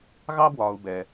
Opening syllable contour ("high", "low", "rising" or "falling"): high